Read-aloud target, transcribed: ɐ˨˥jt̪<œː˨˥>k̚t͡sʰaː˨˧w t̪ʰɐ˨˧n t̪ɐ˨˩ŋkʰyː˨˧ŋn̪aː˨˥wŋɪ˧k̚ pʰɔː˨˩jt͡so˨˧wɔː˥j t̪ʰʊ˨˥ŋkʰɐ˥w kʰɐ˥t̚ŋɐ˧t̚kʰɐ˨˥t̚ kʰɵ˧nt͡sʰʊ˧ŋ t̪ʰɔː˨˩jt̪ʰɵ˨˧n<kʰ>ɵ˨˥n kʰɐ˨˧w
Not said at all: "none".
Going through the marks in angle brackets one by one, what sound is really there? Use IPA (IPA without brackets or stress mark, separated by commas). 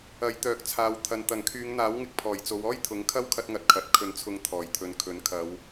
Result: œː˨˥, kʰ